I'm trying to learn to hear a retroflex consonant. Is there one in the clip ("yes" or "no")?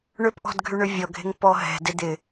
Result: yes